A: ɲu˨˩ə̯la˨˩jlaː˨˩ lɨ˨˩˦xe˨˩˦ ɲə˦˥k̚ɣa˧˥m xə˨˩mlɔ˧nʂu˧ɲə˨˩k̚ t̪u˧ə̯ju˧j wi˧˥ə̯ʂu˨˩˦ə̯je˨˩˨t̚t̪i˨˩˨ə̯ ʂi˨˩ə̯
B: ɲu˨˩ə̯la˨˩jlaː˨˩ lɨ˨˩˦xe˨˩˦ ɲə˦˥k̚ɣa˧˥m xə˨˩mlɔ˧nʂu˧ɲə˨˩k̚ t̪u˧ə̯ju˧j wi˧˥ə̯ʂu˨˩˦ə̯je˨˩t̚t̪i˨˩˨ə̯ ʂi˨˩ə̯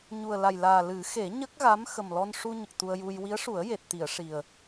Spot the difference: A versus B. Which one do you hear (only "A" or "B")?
B